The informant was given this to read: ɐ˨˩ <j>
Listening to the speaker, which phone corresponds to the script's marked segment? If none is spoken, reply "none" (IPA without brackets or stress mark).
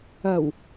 w